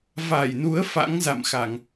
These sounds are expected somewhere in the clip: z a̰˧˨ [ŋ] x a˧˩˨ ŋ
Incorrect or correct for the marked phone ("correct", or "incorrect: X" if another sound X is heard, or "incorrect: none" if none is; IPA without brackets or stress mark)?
incorrect: m